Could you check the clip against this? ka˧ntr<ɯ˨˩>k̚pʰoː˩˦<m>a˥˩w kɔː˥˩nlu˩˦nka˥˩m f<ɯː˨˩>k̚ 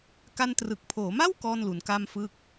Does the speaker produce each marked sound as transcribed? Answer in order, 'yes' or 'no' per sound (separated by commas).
yes, yes, no